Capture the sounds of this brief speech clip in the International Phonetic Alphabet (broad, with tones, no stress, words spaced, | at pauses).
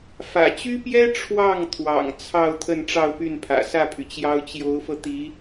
fä̰˨˩t͡ɕy˥pjɛ˥ ʈ͡ʂʰwɑ˥˩ŋt̪ʰwɑ̰˨˩ŋ t͡sʰɑ˥˧ʊ̯ t̪ʰə˥˧nʈ͡ʂɑ˥˧ʊ̯py˥˩npʰä̰˨˩ sä˥˩pʰy˩t͡ɕjɑ˥ʊ̯ t͡ɕjo˧˥ʊ̯fɤ˧t̪i˧˥